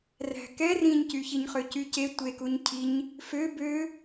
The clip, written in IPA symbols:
r æ̤ k ɛ r ĩ ɲ c y ç i ɲ χ ø c y c e tʷ e k u ɲ cʰ i ɲ | f ø b ø

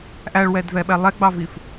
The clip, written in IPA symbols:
ʔ æ ɭ w ɛ d v ɛ ɓ ɛ lˠ ɛ ɡ͡b ɑ v i f

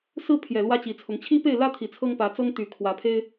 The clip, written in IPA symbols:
s ɹ̩˦ pʰ j ɛ˨˩ l w ä˦ t͡ɕ i˨˦ t͡sʰ ʊ˨˦ ŋ t͡ɕʰ i˦ p e˥˨ ɪ̯ l ä˦ t̪ʰ i˨˩ t͡sʰ ɤ˦ ŋ p ä˨˦ t͡s ɤ˦ ŋ t̪ y˨˩ kʰ w ä˨˦ pʰ e˦ ɪ̯

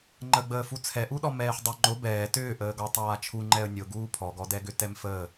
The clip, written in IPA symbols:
ŋ͡ǃ ə ɡ͡b əː f u t͡sʰ ɛ ʔ u ɗ ɔ m ɛː ħ dˤ ʏ ŋ͡ǃ ʊ b ɛː t ʏː ʔ əː ɡ ɔ tˤ aː t͡ʃʰ u ŋ͡ǃ ɛ ə̯ nʲ ʊ ɡ uː pʰ ɔ ɡ ɔ d ɛ ɡ ʏ t ɛ m f əː

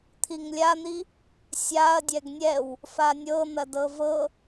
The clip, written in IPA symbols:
t̪ʰ i ŋ lʲ a n̪ i | sʲ a ɐ̯ dʲ ɛ ɡ nʲ ɛ w | f a nʲ ɤ n̪ ɐ d ɤ v ɤ

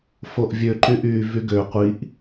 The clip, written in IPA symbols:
f o ʔ vʲ ø ǃ y ʔ yː v y ɡ ø qʷ i ʔ

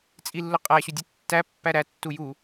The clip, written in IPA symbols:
t͡sʼ i lː ʊ qʼ æ ɕ u dʲ ʊ tː æ pː æ ɾ æ tː u j u

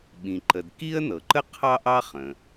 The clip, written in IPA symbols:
ɓ ĩ˩ ǃ ə˩ d k i˥ ə̯ n ɤ˩ ǃ ə˥ qʰ ɑ˥ ʔ ɑ˥ χ ə̃˩

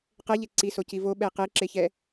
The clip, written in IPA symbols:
q ɛ ʎ e ǀ i s o c i v o ɓ ɛ e̯ q e ǁ e ç ɛ

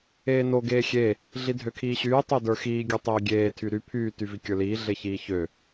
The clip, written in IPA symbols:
eː n o ɡ eː xʲ e | ɮ i dʱ ø kʰ iː ɕ yː tˤ o d ə˞ x iː ɡʲ ə˞ tˤ eː ɡʲ eː tʰ y ɾ y pʰ yː t y v i kʲ ə˞ l iː ɮ e ç iː ç ø

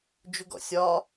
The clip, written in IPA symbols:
d͡ʒ u ɡ ɔ̰ sʲ ɒ

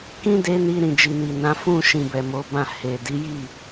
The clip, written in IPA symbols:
k ĩ˦ d e˦ n i˧ ɾ ĩ˨ d͡ʒ i˨ n i˨ n ã˨˦ f ũ˦˨ ʃ ĩ˨ b ɛ˨ m o˨˦ b ã˦˨ h e˨ d i˨˦ j i˦˨

